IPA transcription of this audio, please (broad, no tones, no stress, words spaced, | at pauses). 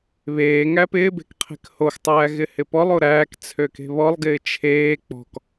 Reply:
βeː ŋæpɪːbe̤k qʰe̤khoxtˤæː ɣɪhɪpɔlˠo ɾæːk t͡sʰøke̤βɔlˠɡɪː t͡ʃʰeː k͡pɔ̤k